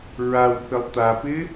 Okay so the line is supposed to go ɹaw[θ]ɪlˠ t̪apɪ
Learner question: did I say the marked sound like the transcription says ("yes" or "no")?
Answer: yes